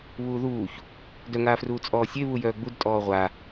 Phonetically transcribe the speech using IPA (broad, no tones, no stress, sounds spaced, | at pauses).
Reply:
β uː ð uː ç | d œ ŋ aː f r uː t͡sʼ ɔː sʲ e β u j œː ɡ͡b u d tʼ ɔː ʁʷ a